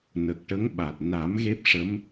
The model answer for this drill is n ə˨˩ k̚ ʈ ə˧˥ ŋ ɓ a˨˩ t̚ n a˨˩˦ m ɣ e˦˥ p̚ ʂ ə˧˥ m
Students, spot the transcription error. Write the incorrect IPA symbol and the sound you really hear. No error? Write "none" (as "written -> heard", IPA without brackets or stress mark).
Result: none